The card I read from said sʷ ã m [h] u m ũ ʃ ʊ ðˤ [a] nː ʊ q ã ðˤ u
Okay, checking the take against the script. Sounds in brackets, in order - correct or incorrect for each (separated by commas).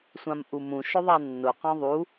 incorrect, correct